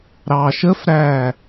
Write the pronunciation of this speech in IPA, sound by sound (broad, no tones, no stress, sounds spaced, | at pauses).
ɾ ɑ ʃ ə f ɾ æ